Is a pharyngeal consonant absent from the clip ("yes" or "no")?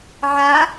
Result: no